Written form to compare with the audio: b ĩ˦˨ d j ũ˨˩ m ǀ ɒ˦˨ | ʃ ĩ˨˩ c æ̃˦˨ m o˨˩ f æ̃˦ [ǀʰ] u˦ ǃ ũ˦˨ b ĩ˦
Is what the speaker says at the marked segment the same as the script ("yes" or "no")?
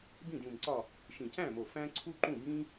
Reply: yes